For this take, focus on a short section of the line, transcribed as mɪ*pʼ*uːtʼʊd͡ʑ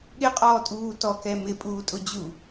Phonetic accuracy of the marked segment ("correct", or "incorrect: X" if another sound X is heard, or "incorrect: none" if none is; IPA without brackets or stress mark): correct